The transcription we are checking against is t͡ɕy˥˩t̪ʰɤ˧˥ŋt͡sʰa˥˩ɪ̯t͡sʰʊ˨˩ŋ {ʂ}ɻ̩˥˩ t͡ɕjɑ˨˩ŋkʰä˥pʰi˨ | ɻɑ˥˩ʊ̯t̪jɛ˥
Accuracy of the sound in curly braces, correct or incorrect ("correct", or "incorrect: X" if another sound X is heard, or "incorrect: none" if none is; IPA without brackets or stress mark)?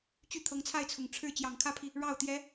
incorrect: ʈ͡ʂʰ